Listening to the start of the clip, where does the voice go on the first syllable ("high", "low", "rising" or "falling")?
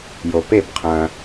low